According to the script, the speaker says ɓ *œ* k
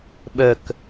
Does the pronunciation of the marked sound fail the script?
no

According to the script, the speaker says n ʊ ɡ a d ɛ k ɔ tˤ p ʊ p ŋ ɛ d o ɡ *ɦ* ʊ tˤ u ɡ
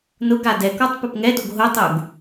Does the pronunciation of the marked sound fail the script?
no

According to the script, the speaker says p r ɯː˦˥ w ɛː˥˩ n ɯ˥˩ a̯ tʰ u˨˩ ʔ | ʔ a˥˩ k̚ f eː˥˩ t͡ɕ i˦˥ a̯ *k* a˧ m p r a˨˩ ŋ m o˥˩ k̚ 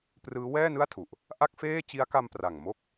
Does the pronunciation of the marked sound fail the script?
no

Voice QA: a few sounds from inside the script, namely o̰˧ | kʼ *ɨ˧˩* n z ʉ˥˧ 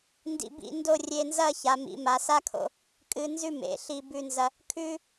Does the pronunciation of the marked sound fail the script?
yes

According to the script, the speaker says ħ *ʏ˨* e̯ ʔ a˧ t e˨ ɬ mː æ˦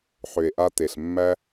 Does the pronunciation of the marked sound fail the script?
no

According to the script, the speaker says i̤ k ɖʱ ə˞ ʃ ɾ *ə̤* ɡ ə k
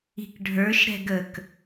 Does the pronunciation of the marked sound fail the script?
yes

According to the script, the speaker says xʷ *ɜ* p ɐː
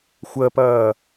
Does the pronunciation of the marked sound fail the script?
no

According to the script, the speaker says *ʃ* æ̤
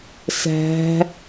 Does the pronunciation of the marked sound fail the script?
yes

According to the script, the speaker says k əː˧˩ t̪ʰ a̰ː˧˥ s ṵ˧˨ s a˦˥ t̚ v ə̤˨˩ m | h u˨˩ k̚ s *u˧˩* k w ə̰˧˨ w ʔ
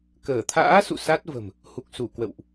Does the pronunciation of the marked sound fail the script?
no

